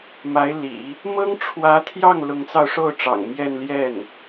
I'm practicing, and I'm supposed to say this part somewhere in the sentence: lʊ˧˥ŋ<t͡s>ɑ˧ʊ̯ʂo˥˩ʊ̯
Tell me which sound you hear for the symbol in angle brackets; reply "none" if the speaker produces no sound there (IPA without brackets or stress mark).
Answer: t͡s